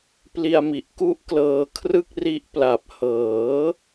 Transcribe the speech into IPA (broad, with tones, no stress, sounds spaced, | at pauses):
p l i˧ a̯ m i˨˩ ʔ k u˦˥ ʔ k l ɤː˧ kʰ r ɯ˥˩ k̚ r i˦˥ ʔ p l a˨˩ p̚ h ɤː˩˦